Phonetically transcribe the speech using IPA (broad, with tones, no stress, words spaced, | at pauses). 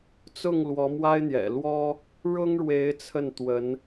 t͡sʊ˥˩ŋ lwɔ˧˥mwa˥ɪ̯n̪jɛ̰˨˩ lwɔ˥ | ɻʊ˥ŋɻwe˧˥ɪ̯ t͡sʰə˥˩n t̪wə˧˥n